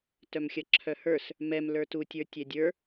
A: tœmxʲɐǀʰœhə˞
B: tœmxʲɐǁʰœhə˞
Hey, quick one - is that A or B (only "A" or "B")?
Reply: B